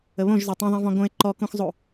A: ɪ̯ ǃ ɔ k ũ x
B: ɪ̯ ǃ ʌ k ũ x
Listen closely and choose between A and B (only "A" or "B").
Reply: A